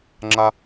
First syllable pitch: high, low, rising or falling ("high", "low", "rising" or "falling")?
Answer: high